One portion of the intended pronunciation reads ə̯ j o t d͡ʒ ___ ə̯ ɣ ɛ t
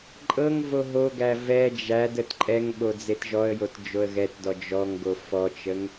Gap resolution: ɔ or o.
o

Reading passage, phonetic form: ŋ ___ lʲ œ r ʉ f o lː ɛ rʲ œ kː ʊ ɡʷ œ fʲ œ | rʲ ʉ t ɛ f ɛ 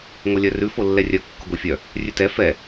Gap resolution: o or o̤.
o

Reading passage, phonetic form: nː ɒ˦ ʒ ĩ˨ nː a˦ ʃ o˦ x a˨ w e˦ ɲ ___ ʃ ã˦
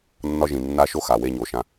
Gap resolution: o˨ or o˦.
o˨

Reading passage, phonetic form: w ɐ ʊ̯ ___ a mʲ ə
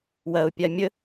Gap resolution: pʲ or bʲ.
pʲ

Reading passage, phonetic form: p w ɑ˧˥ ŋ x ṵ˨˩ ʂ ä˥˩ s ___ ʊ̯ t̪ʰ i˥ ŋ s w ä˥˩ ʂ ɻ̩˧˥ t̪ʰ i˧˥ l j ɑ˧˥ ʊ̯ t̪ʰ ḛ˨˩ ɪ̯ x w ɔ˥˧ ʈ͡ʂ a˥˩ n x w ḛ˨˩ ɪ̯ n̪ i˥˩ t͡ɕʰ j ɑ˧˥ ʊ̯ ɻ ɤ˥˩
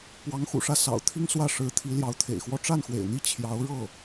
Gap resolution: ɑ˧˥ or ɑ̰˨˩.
ɑ̰˨˩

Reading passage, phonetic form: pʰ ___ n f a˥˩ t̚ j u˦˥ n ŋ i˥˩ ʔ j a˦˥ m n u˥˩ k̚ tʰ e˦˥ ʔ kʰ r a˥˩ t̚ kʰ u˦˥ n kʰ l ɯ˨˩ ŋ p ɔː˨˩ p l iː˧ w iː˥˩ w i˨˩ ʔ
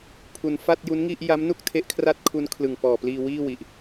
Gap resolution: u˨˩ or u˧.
u˧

